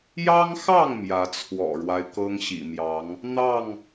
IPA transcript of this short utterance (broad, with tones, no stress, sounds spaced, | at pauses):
j ɑ˦ ŋ x ɑ˥˨ ŋ m j ä˨˦ t͡sʰ w ɔ̰˨˩ ɻ w a˦ ɪ̯ k ɤ˦ ŋ ɕ ḭ˨˩ m j ɑ˨˦ ŋ | n̪ ɑ˥˨ ŋ